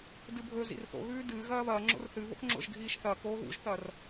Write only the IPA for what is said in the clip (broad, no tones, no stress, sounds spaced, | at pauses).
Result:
d ɨ bʱ ɵ z ḭ r θ o̰ ɣ ʉː d ɨː ɣ ɐː β ɐː ŋ͡ǁ o̰ r θ ɨ β o̰ k ŋ͡ǁ o̰ ʒ ɡʱ iː ʃ θ ɐː k oː ɣ ṵ ʒ θ ɐ r